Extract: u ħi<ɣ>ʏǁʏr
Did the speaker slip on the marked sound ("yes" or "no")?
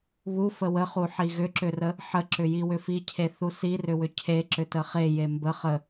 no